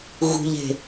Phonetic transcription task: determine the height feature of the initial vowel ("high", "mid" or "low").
high